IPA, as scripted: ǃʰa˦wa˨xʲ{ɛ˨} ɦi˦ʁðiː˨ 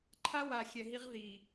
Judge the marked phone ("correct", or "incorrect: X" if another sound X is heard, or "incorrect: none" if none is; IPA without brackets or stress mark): correct